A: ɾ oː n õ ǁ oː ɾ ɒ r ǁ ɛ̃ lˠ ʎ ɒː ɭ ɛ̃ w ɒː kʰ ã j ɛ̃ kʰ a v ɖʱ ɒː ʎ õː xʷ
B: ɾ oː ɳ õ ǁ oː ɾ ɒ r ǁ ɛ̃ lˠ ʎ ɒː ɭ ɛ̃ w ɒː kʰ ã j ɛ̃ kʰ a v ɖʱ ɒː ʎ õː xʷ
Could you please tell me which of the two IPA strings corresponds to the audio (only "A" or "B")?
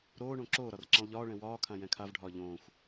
B